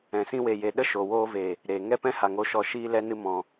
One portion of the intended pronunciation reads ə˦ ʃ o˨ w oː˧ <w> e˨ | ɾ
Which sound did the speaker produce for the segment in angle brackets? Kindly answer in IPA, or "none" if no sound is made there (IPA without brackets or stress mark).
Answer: v